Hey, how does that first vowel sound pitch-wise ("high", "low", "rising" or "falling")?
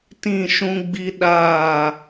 falling